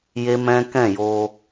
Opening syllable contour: high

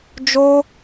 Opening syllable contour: high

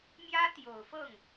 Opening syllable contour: high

